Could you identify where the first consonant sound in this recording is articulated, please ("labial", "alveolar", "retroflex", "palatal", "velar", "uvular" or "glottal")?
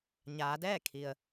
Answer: palatal